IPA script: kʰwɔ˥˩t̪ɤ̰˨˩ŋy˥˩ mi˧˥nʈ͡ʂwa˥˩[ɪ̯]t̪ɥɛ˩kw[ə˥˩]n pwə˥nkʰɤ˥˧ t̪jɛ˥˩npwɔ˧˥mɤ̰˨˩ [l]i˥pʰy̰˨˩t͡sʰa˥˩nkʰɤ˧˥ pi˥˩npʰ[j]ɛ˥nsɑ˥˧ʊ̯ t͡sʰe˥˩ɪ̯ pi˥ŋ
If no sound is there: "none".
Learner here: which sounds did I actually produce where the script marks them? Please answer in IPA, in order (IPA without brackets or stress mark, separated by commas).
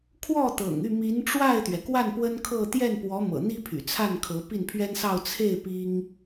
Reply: ɪ̯, a˥˩, n̪, ɥ